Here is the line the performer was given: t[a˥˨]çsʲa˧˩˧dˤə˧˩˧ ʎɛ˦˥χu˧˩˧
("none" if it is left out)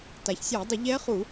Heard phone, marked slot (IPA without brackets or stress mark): a˩